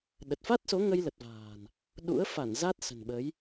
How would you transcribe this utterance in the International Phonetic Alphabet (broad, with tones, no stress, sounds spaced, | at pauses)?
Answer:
ɗ ə˨˩ t̚ f a˦˥ t̚ s o˨˦ ŋ ə˧ j l ə˨˩ t̚ v a̤ː˨˩ n | ɗ ṵ˧˥ ə̯ f a˧˩ n z a˦˥ t̚ s ə̤˨˩ n ɓ ə˨˦ j